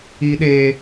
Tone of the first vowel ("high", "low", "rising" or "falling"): high